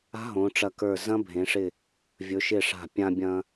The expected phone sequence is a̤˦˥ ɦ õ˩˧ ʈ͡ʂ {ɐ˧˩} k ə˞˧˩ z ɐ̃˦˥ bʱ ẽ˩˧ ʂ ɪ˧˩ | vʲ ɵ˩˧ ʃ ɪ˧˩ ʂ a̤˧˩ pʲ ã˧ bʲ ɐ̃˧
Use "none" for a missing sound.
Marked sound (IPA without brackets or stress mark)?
ɐ˧˩